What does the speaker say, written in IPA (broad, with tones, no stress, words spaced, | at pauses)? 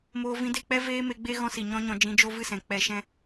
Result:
moː˧ vĩ˧de˦˨k͡pɛ˦ veː˦me˧ɡ͡be˦ ɣɔ̃˦si˨ɲɔ̃˦ɲɔ̃˧ d͡ʒĩ˧d͡ʒo˦ vɨ˦˨sɛ̃˨ k͡pɛ˧ʃɛ̃˦